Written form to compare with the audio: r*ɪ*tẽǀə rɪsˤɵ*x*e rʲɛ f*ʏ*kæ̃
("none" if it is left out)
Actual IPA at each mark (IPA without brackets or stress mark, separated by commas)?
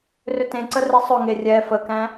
ʏ, ŋ, ə